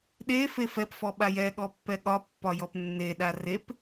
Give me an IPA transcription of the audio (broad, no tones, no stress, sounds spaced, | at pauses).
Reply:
ɗ e f e f ɛ p f ɔ ɓ a j ɛ ɠ ɔ pː ɛ ɠ ɒ pː ɒ j ɔ p nː e ɗ a r e p